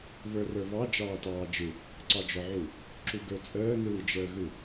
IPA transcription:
β ə˞ r ə˞ β ɑ d͡ʒ ɑː t ɑː d͡ʒ ɯ | ǀ ɑ d͡ʒ ɔ ʕ u | ǁ u ɡ ə˞ t͡sʼ əː n ɯː d͡ʒ əː ɣ ɯ

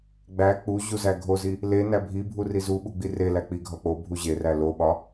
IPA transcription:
ɡ͡b æ k͡p u ʑ u z æ ɡʱ o z i | l e n æ bʱ i bʱ u r i z u ɓ u ɡ͡b i r e l æ k͡p i ɡʱ ɒ k͡p o bʱ u ʑ e r æ l o ɓ ɒ

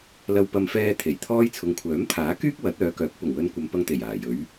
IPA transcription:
l ɐ˧ w p ɐ˧ m f ɛː˧ t̪ʰ e˨˩ j t̪ʰ ɔː˥ j t͡sʰ ʊ˨ ŋ kʷʰ œː˨˥ m t̪ʰ aː˨˥ k yː˥ k̚ w ɐ˨˥ t̚ œː˨˧ k œː˨˥ k̚ p ʊ˨˩ ŋ w ɵ˧ n kʷ ɐ˨˧ m p ɐ˧ ŋ t̪ e˨˩ j aː˨˩ j ɵ˨˥ ɥ

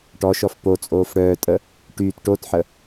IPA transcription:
ʈ ɔ ʃ ɔ f p o t͡sʼ oː f ɽ œː tʼ ə | ʈ y t ʈ o t ħ ə

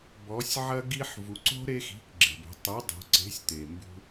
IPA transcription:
b ɔ˩˧ sʲ ʕ ɐ˦ ɡ i˦ ħ v u˩˧ ǀ o̤˦ ɾ e˦ x i̤˩˧˩ k ɡ͡ǁ e̤˩ b o̤˩˧ tˤ u˨˥ dˤ o̤˩˧ ǀ e̤˨˥ sʲ t̪ e˩ m b ṳ˦

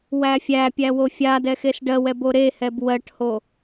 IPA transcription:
w æ fʲ æ pʲ æ w o fʲ a d ɛ x e s ɖ ɜ w ɛ b o ɾ e h ɛ b w ɜ ʈ h o

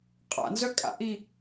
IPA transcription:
qʼ a̰ n z œ kʼ a̰ ʔ i

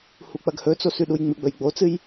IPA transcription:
h u k͡p ɐ ɡ h ɵ t͡s o s ʉ ɗ u j ŋ͡m ɨ ɡ͡b ɵ j ɡ͡b o t͡s ɨ j

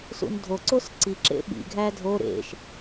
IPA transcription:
s ṵ n dʱ o ǀ o s ǀ i ǁ ḛ ɓ ḭ ɡʱ æ dʱ o ɾ ḛ ʃ

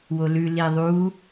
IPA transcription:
w o l ʉ l i ðˤ u

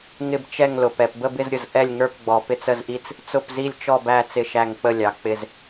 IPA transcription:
ŋ ɪ˦˨ b t͡ʃ ɛ˦˨ ŋ l ʊ˨ p ɛ˨ p b ə˦˨ b ɪ˦˨ z ɾʲ ʊ˨ z ʔ ɛ˦˨ lʲ ŋ ə˞˦˨ p ɡ͡b ɔ˨ p ɪ˦˨ t͡s ə˦˨ z ʔ i˦˨ t͡s | t͡s ʊ˦˨ p z i˦˨ lʲ t͡ʃ ɔ˦˨ b æ˦˨ t͡s ɪ˦˨ ʃ æ˦˨ ŋ k͡p ə˦˨ lʲ ɑ˨ k͡p ɪ˦˨ z

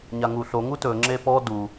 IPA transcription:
ɲ a ŋ u ɬ o ŋ u t ɵ ŋ͡ǁ e p ɔ d u

